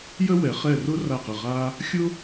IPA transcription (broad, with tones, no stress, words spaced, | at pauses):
jə˥wɛ˩˥χɛ˦˨rʊ˥ ra˦˨qə˦˨ʁa˥ | xʲʊ˥